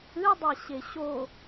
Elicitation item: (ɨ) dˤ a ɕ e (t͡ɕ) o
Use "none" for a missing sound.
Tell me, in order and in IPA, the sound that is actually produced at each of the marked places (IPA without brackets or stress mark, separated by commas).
ɨ, ɕ